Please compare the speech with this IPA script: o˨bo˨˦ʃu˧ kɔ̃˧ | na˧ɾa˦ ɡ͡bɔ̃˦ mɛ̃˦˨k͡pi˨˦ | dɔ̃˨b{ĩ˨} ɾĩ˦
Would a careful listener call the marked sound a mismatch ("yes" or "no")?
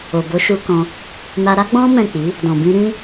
yes